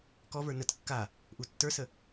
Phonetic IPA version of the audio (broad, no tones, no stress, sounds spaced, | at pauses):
k ɔ v ə˞ n ə t kː a | ʔ u tː ə˞ s ə